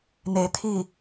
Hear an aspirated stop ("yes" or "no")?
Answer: yes